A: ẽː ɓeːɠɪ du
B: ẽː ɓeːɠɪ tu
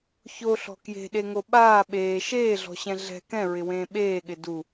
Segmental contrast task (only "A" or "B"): A